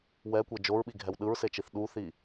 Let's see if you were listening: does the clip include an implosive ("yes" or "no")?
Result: yes